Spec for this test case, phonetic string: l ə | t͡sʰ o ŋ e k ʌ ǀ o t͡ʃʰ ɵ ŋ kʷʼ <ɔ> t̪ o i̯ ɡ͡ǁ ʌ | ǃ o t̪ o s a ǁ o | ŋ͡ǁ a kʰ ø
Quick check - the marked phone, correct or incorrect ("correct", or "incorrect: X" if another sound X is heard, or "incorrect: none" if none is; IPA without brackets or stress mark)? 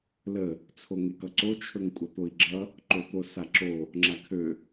incorrect: ʌ